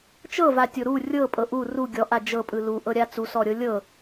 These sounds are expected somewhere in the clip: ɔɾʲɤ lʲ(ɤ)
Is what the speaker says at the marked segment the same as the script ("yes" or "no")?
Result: yes